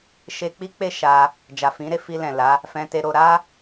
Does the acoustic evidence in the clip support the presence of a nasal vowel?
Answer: yes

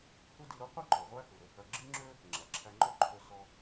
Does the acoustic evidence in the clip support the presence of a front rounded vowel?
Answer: yes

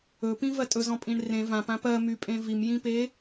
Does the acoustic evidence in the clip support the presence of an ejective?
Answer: yes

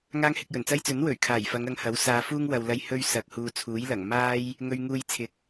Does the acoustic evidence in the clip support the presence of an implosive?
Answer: no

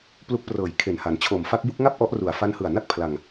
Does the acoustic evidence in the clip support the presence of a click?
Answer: no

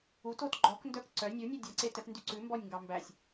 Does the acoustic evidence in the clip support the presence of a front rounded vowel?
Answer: yes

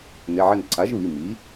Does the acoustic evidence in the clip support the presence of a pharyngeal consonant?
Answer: yes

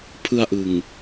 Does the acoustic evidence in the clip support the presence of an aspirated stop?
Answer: yes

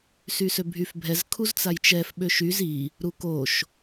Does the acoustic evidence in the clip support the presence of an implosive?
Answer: yes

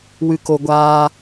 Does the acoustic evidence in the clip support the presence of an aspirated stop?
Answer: no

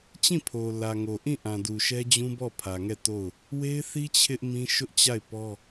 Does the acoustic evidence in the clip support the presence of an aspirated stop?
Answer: yes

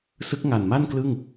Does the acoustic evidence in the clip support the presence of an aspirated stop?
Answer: no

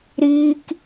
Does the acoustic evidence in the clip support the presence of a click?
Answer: no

